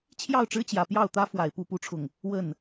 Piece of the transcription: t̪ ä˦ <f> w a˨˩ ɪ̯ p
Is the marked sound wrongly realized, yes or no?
no